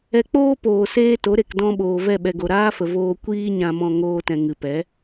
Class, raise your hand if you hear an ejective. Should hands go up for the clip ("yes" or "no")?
no